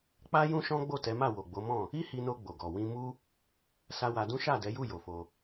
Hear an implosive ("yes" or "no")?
no